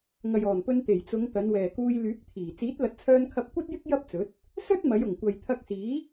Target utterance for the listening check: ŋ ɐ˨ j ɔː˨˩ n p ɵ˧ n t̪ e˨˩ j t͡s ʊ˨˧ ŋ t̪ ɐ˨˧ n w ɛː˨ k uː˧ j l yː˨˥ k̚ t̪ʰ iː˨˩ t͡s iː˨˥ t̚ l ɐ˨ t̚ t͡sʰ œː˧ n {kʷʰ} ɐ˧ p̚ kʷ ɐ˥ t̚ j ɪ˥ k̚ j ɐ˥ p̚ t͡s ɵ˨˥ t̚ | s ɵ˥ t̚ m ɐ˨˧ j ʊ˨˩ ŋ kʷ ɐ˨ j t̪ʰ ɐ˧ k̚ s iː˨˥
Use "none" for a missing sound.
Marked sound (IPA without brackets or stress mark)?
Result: kʰ